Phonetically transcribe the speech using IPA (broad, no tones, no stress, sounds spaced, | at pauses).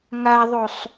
ŋ a ðˤ o sˤ